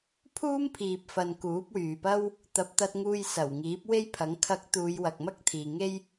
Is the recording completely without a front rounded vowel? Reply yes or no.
no